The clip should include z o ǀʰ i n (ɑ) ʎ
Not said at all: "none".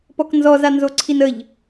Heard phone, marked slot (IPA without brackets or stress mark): ə